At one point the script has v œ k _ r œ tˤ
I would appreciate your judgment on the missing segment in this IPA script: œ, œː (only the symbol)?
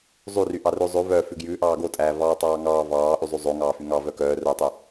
œː